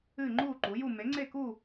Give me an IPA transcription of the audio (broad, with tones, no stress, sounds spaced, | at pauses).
ɨː˥˧ ŋ͡ǃ uː˥˧ ǃ u˨˥ j u˥˧ m e˨˥ ŋ͡ǀ e˥˧ k u˥˧